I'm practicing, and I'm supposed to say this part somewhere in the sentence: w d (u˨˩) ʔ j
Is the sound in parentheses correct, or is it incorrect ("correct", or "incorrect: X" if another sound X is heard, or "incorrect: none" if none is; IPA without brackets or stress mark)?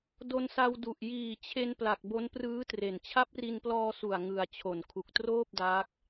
correct